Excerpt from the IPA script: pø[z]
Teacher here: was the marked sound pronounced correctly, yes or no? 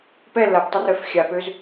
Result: yes